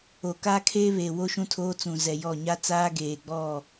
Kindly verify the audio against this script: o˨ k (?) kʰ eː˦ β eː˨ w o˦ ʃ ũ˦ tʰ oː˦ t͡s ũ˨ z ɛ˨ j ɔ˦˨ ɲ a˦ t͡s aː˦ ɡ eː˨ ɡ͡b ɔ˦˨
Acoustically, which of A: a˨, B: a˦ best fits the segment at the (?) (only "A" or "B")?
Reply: B